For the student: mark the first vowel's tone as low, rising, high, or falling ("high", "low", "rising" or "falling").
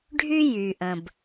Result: high